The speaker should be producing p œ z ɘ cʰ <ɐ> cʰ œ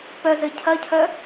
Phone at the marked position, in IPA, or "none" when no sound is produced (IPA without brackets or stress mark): ɐ